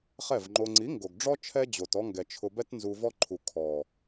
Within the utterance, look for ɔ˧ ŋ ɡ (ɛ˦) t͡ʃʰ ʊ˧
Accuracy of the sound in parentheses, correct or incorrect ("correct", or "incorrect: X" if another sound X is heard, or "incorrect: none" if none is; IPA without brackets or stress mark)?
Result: incorrect: ɛ˨